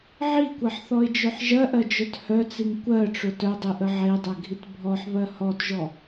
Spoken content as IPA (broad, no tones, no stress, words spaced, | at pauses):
ʕikʷɜħθɔɪ̯d͡ʒœħ ʒɜʔɜd͡ʒœt hœt͡siŋ kʷɜʈ͡ʂʊ tœdˤiʔə ʕedˤɜɡʱit bʱɔħβɜ hɔtʒɔ